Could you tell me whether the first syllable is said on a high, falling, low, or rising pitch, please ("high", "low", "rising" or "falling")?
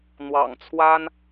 low